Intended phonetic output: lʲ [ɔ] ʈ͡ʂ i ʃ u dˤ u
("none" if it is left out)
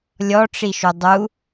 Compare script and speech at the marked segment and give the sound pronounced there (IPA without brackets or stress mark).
ɔ